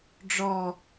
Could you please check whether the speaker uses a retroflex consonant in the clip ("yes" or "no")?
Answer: yes